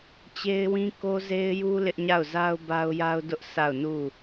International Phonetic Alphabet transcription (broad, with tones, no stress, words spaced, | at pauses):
t͡ɕe˦ɪ̯wĩ˦ ko˦ze˦ɪ̯ju˦ lɪ˦ʔɲa˦˨ʊ̯za˦ʊ̯ ba˦ʊ̯ja˦ʊ̯dʊ˦ʔ sʰa˦˨ʊ̯nu˦˨